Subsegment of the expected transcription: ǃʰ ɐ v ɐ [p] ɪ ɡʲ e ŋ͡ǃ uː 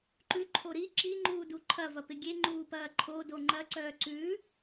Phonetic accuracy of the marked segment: correct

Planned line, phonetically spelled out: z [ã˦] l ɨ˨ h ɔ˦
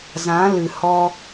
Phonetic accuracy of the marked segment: incorrect: ã˨˦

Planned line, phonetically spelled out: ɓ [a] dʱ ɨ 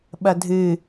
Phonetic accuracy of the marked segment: incorrect: ɐ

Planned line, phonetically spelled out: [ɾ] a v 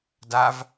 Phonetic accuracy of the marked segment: incorrect: d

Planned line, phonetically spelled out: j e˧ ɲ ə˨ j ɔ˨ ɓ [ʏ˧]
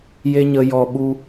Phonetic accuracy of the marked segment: incorrect: u˧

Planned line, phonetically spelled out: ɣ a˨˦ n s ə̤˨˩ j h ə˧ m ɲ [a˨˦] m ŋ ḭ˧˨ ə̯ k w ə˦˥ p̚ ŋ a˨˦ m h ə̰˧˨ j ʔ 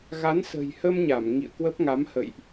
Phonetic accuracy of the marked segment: incorrect: a˧˩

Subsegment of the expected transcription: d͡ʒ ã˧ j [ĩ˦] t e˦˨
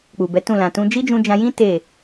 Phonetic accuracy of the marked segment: correct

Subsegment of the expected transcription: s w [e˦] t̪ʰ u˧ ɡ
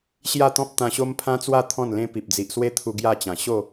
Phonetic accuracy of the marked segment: correct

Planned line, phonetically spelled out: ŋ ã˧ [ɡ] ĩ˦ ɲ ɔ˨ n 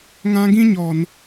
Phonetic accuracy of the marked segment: correct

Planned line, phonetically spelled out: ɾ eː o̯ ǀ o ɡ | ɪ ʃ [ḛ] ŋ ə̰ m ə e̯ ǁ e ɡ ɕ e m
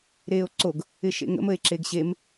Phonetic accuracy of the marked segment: correct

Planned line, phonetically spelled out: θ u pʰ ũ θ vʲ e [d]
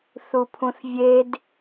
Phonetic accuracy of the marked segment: correct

